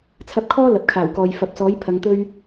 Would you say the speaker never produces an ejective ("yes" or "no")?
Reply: yes